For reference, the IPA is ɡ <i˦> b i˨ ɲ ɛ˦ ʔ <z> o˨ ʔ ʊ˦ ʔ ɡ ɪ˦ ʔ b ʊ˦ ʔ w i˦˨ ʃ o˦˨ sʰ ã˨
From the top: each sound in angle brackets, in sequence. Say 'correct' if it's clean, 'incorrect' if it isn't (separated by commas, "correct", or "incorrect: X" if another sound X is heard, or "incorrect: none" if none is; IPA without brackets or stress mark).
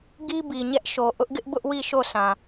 correct, incorrect: ʃ